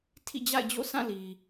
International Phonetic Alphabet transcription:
tʰḭ˦˨d͡ʑa̰˦˨ɪ̯d͡ʑo̰˦˨ sã˦˨li˨

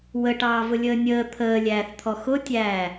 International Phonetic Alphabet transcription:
wəʈɑːvʊ lʲəːnʲəː t̪ʰəːlʲæːθt̪ʰɔ xʊtʲæː

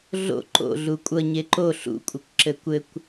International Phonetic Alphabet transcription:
ɮo̰ ǃo̰ ɮukʷʼʌ ɲeǃo ɬṵkʷʼɘkʷ ǁɘkʷɘkʷ

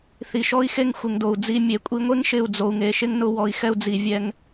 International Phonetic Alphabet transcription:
θi˨ʃɔ˦i̯xe˧ŋ xʷɪ˨ŋdo˨u̯d͡zi˦˨ mʲe˨kʷʼi˧ŋʷe˦ŋ ʃɪ˦˨u̯ d͡zo˨u̯ŋe˨ ʃɪ˦ŋnʊ˧ wɔ˨i̯xɛ˧u̯d͡zi˨ vʲɛ˧ŋ

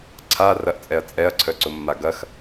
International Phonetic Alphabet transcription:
ǀʰa rɐʔt͡sʼɛɐ̯ t͡sʼɛɐ̯ǀʰœǀʊmːa ɡɐx

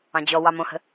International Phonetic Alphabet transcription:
ɑ̃d͡ʑɔ wɑmõhə̤

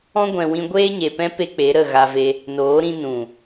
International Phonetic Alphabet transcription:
ɔ̃˦ ɡʷɛ̃˧wĩ˦ ɡʷeː˦ɲe˨pɛ̃˦pe˧ k͡pe˨˦ɾə˦˨ ɣa˧ve˧ | noː˨˦ɾĩ˧ nũ˨

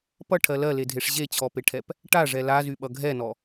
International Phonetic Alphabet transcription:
pʌʈʰɜ lɜledʱeʂ ʑet͡ɕʰɔpeʈʰɛp | ʈaʐɛ lazyɓʌ ɡʱɛnɔ

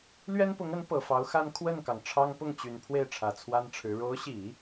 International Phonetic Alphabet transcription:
lɥɛ˥npʊ˧˥ŋə˧˥n pɤ˨˩fɑ˧˥ʊ̯xa˥n kʰwə˥˩nkɑ˩ŋ ʈ͡ʂʰɑ˥ŋ pʊ˥˩ŋt͡ɕy˨˩n pʰwe˥˩ɪ̯ʈ͡ʂʰä˨˩ t͡sʰwa˥nʈ͡ʂʰɻ̩˧˥ ɻo˧˥ʊ̯ɕi˨˩˦

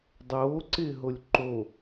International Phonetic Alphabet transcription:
dˤoːǀɪːɦolʲ ǃo

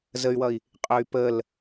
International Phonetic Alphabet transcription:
zəy̯wʌi̯ | qʼœy̯pəl

